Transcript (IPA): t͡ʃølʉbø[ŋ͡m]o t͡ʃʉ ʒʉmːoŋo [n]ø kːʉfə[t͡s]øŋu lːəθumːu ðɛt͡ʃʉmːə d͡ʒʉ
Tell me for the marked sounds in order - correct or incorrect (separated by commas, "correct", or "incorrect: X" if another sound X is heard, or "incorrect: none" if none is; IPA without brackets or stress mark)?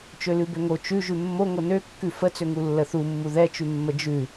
incorrect: ŋ, correct, correct